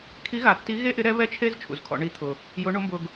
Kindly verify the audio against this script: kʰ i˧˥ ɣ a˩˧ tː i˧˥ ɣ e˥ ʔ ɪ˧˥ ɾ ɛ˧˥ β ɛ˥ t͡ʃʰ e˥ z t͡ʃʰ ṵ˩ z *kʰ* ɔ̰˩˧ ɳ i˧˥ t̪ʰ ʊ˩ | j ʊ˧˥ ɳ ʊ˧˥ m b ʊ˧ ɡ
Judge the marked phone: correct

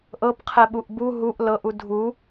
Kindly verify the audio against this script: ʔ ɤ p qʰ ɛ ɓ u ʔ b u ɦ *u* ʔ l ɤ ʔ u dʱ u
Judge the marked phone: correct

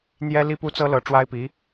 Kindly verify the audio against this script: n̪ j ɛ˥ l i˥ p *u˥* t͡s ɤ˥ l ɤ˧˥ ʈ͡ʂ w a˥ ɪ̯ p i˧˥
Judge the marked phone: correct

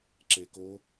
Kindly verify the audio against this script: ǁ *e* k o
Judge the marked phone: correct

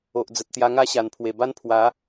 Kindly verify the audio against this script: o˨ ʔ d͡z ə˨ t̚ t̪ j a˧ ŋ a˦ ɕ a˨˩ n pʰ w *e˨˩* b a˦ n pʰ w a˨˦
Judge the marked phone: correct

